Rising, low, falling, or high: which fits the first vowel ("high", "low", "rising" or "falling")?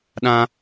high